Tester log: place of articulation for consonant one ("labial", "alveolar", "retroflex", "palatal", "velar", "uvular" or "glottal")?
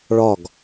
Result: retroflex